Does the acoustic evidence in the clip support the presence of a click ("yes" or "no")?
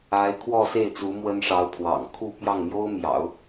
no